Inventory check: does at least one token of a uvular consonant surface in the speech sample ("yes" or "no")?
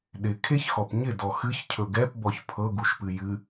no